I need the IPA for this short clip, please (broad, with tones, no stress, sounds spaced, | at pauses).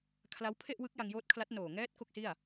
kʰ l a˦˥ w pʰ e˥˩ ʔ w ɯ˦˥ k̚ j a˧ ŋ j oː˦˥ t̚ kʰ l a˦˥ t̚ n oː˨˩ ŋ ɛː˦˥ t̚ k o˥˩ k̚ s i˥˩ a̯